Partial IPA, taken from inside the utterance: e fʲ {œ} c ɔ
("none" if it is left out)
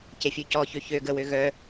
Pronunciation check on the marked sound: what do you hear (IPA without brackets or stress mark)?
ø